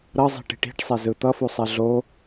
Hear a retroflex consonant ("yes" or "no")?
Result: yes